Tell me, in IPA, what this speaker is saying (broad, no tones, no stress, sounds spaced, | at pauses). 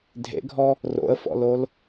dʱ ḛ ɡʱ ɔ | r o̰ ə̯ f ɔ̰ l o l